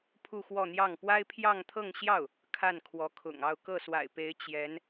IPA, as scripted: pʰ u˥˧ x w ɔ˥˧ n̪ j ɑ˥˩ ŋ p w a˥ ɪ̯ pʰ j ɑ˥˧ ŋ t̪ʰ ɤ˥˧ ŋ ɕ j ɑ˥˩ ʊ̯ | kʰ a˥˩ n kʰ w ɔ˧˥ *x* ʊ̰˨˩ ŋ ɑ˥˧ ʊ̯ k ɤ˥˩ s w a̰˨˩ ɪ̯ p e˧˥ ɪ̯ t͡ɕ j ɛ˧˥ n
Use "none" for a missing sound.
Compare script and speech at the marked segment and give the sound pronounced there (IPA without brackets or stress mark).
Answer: kʰ